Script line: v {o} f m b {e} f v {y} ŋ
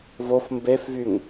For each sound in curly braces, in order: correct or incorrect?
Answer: correct, correct, correct

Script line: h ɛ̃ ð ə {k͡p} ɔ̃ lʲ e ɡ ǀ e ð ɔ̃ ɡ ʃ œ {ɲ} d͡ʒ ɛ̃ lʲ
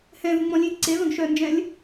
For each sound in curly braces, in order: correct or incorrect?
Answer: incorrect, incorrect

